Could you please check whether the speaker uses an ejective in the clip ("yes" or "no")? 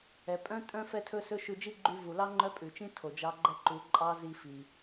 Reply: yes